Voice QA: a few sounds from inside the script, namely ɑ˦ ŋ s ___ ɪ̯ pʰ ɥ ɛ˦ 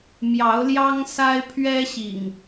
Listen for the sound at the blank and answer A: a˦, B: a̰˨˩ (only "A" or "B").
A